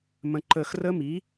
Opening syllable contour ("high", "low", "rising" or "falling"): low